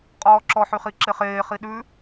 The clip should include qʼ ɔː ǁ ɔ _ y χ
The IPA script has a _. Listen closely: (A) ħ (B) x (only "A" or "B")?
A